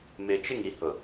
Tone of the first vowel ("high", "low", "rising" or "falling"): low